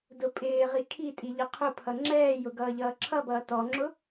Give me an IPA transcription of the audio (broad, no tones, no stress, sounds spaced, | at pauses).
d ʊ pʼ ɪː ʁ i kʰ i tʼ i ʎ ʌ qʰ ʊ pʰ ʌ ŋ͡ǁ ɛː j ʊ ɡ ʌː ʎ ʌː ǁʰ ʌ b ʌː t ɔ ŋ͡ǁ ʊ